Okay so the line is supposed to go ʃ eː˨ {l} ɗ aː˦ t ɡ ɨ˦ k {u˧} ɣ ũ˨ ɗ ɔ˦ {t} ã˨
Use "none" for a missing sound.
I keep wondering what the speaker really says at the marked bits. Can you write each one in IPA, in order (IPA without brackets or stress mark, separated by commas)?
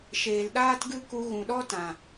l, u˧, t